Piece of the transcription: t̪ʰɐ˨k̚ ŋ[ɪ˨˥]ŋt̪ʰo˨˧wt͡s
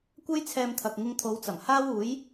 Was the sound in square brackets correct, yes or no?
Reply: no